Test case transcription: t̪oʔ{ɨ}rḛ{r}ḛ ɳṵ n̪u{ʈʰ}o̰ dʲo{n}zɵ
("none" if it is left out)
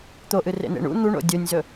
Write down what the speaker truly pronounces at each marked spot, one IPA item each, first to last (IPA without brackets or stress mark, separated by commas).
ɨ, n̪, ɳ, nʲ